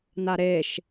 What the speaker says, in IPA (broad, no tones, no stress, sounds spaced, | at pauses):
n a ɾ e ʃ